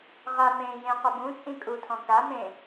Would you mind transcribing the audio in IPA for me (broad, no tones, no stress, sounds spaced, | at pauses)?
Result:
ʁ a m ẽː j ẽ q ɛ b ũ t͡sʼ ĩ kʼ u tʰ ɔ̃ k a m ẽ